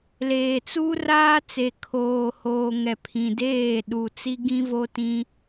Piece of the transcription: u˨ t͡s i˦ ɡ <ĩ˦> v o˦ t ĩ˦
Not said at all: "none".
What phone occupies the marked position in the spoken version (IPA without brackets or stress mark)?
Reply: ĩ˦